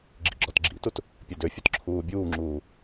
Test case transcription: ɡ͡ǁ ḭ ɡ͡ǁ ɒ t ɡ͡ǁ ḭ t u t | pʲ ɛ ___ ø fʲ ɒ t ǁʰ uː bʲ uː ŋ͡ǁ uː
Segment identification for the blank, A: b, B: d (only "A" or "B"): B